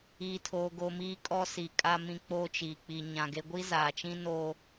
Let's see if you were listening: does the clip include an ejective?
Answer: yes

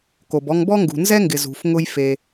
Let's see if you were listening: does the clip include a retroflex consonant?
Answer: no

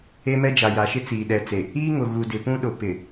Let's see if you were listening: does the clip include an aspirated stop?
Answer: no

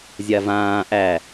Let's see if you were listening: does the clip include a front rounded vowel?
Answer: no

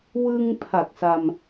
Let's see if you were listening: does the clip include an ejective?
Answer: no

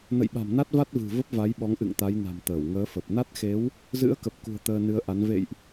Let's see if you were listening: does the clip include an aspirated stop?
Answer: no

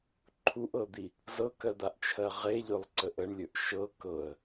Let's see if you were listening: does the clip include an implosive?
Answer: no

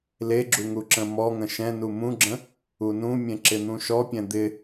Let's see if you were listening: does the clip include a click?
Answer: yes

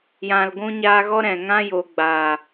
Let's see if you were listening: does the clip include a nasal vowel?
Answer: yes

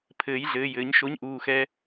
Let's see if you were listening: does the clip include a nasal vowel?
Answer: no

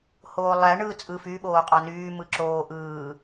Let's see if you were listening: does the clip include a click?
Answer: yes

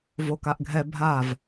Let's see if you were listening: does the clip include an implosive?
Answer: no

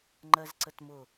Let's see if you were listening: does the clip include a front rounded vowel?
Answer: no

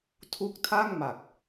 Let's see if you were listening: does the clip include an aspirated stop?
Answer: yes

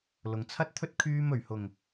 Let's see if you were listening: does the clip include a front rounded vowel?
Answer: yes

